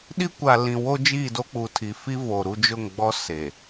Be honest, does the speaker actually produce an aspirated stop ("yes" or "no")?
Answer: yes